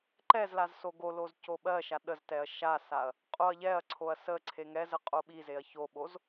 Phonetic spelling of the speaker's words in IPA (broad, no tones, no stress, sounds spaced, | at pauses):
ǃ ɛ z l a z s o ɡ o l o z c o ɓ ɜ ʃ a ɗ ə z t ɛ ɐ̯ ʃ a s a ɐ̯ | qʼ o ɐ̯ ʎ ɛ ɐ̯ ǀʰ o ɐ̯ s ə ǀʰ e ŋ ɛ z ə qʼ o ɓ i z e ɐ̯ ç o ɓ o z